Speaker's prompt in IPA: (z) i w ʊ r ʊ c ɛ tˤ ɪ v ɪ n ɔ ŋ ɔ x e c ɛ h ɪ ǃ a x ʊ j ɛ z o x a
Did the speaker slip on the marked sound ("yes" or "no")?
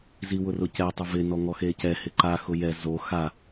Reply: no